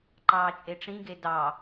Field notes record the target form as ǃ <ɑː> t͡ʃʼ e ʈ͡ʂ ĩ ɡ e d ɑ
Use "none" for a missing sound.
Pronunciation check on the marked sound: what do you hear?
ɑː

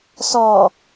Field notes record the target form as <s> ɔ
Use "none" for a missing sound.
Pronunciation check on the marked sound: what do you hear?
s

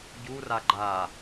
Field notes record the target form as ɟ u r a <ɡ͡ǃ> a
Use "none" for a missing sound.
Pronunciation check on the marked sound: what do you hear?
ɡ͡ǃ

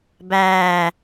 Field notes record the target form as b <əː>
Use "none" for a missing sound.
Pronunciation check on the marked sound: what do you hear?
æː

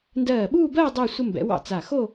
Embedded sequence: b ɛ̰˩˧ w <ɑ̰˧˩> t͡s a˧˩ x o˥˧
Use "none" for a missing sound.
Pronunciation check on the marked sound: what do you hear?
ɑ̰˧˩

